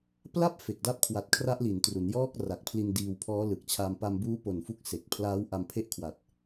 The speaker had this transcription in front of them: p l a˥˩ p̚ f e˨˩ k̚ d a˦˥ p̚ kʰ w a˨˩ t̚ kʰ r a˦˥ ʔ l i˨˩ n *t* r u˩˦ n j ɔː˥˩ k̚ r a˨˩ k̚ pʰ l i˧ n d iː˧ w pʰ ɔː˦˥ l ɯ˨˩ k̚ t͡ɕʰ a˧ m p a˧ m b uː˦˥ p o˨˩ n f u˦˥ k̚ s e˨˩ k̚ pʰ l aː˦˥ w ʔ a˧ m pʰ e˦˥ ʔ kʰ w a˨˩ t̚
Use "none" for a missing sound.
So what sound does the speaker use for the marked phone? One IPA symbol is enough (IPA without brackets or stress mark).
t